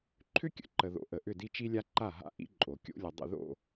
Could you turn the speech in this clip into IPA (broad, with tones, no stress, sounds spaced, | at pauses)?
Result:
ǃʰ ʏ˦ kʲ ə̰˨ ǃ ə˨ ð o̰˨ ʔ ə˨ ʔ ʏ˦˨ d i˦ t͡ʃ i˦ lʲ a˦ ǃ a˦˨ ɦ a̰˦ ʔ ḭ˦ ǃʼ o˨ kʲ o̰˦ lʲ ə˨ dˤ ə̰˦˨ ð o̰˦˨